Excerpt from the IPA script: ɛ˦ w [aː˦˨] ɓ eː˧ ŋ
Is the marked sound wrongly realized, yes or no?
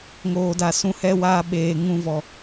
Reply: yes